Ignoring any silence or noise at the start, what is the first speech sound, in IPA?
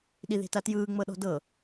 ɗ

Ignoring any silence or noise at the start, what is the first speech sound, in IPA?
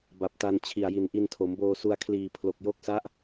b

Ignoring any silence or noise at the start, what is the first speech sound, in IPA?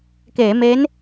k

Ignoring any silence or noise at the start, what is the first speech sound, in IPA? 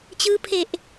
t͡ɕ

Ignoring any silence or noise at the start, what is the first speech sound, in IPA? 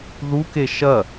ð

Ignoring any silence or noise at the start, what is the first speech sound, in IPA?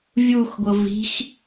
vʲ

